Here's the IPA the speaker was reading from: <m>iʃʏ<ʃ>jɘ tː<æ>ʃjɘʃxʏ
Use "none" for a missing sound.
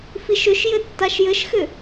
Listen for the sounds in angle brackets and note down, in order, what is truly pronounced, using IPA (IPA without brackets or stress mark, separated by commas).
f, ʃ, a